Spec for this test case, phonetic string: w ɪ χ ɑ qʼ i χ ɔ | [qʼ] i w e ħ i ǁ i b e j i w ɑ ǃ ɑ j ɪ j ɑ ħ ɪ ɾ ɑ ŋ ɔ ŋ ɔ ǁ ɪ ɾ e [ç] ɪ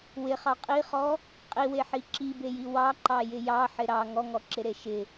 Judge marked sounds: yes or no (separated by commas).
yes, no